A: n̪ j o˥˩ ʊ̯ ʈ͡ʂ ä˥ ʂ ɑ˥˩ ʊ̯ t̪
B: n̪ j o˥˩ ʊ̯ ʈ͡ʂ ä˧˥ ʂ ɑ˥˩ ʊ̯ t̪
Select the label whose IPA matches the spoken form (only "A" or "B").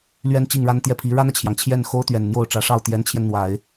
B